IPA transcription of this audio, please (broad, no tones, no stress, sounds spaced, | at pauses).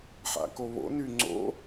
ħ a̰ k o β o̰ n y ŋ͡ǀ o̰